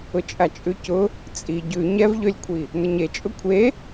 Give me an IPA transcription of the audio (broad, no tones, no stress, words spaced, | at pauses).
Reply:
ʊt͡ʃʼat͡ʃʼʉcʊ | t͡sʼi ɟʉ ɲɛvʎølʲkʷʰi | nʊɲet͡ʃʼʊ kʷʰe